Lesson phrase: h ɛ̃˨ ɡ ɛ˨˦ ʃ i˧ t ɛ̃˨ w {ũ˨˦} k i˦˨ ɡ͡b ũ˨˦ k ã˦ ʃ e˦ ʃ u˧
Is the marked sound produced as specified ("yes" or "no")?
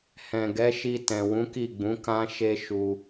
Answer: yes